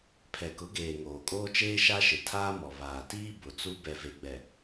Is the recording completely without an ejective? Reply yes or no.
no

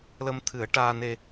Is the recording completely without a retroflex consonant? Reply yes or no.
no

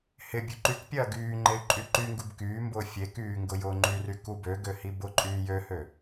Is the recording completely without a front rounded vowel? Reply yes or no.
no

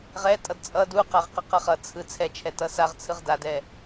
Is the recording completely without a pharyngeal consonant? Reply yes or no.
yes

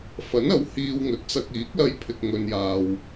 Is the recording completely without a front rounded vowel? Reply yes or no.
yes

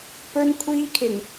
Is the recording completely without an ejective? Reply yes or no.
yes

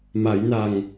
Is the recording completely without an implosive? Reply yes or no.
yes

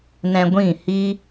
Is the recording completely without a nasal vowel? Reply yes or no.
no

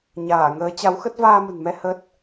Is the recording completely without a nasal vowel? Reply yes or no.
yes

